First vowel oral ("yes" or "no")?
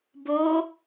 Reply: yes